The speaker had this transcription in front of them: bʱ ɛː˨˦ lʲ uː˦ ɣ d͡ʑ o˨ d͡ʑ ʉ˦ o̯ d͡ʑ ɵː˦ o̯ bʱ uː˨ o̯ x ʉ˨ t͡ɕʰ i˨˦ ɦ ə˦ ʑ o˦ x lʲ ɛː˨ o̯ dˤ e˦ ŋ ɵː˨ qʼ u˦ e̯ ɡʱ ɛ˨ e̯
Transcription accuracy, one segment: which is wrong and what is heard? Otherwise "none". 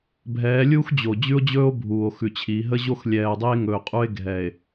ɣ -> x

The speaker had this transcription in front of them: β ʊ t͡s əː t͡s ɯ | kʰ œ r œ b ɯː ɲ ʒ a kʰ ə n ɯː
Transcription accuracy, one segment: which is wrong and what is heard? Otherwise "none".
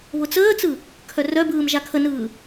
ɲ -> m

